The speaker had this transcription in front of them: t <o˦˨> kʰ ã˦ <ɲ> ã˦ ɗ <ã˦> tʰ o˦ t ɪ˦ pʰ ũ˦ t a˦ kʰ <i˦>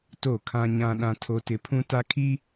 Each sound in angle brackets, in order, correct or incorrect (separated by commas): correct, correct, correct, correct